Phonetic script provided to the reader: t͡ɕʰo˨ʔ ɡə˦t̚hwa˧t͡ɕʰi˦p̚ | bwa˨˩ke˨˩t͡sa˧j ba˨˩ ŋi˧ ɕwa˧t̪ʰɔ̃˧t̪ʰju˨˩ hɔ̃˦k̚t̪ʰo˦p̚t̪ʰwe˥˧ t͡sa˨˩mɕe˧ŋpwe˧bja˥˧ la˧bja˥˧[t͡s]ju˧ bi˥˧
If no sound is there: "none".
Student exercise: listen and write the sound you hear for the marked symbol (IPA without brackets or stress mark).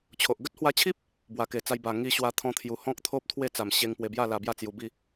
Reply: t͡s